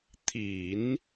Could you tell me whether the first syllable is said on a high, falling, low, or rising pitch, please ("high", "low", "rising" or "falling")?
low